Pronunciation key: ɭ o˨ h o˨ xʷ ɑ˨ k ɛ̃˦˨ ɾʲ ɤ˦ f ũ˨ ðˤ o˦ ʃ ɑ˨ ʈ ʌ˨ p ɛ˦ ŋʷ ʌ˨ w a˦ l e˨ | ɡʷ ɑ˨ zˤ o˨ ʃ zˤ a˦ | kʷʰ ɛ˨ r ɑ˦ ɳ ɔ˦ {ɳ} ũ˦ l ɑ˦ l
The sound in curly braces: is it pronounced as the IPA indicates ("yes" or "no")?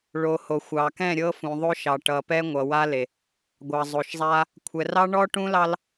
no